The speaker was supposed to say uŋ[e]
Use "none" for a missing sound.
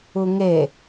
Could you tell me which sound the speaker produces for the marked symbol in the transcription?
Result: e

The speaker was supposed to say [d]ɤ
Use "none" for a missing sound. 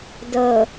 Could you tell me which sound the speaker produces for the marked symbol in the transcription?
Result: d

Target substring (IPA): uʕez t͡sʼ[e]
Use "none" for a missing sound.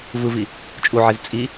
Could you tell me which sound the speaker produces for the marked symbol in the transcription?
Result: i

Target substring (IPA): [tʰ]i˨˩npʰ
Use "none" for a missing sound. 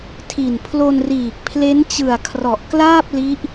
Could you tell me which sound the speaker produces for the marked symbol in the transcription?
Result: tʰ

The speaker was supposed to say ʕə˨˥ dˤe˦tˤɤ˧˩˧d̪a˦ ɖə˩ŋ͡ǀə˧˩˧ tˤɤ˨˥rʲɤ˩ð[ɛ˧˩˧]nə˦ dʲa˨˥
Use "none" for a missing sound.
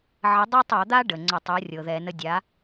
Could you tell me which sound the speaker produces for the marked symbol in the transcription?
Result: ɛ˧˩˧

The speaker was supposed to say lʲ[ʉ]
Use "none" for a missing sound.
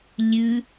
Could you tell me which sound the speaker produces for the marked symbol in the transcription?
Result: ʉ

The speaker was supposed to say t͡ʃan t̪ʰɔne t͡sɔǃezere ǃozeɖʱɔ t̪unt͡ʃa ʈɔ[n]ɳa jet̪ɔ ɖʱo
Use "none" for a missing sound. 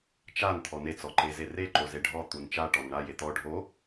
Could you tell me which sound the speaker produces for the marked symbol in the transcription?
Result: n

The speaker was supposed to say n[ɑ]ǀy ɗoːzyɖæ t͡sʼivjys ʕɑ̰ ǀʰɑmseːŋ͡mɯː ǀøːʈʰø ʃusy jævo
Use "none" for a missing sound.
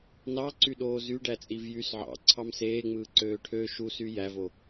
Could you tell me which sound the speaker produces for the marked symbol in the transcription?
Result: ɑ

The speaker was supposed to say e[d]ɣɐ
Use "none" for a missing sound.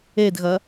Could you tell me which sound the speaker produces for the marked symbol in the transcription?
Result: d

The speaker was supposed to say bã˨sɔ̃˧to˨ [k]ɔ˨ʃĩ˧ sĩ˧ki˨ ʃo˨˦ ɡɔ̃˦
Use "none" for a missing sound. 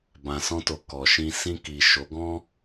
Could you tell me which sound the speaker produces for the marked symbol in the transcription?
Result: k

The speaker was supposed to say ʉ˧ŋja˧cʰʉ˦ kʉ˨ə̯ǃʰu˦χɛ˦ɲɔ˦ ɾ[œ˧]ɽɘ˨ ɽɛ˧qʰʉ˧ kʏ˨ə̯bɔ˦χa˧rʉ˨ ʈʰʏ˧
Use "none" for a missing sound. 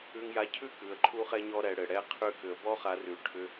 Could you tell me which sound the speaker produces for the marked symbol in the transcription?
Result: ɛ˧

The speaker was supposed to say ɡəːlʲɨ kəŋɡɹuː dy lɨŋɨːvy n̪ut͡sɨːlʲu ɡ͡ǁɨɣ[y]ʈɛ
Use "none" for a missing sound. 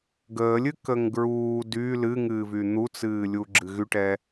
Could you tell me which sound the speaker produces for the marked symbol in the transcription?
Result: y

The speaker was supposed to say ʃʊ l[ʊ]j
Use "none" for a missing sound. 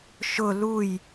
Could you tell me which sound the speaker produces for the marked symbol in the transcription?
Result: u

